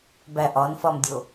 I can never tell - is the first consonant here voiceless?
no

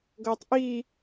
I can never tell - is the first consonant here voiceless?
no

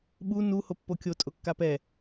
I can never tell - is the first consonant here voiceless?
no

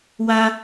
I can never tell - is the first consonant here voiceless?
no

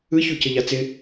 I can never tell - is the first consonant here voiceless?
yes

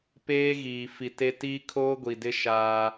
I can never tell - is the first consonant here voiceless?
yes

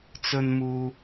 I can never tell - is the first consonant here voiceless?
yes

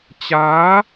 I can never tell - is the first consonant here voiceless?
yes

